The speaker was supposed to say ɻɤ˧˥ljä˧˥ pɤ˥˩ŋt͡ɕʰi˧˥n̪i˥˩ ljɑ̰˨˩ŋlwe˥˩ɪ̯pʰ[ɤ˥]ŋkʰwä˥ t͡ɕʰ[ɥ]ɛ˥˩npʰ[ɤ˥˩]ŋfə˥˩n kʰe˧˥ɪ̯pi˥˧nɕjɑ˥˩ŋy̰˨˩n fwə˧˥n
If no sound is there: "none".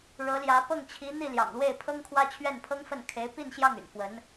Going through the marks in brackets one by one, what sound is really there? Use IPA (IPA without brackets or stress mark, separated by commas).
ɤ˥, ɥ, ɤ˥